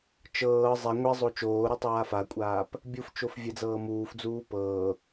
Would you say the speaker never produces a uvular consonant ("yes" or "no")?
yes